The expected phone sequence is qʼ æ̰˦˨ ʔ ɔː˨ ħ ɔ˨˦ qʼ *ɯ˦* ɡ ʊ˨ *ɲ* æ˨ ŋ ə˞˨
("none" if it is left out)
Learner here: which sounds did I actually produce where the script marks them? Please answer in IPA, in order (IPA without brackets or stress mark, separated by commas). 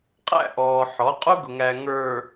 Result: u˦, ŋ